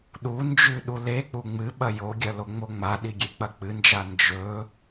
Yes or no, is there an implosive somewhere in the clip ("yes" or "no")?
yes